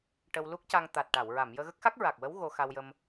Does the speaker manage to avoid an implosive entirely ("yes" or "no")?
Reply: yes